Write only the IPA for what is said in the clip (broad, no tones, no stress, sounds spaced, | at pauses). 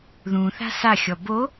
ð ũ θ a̤ s a xʲ ɔ b o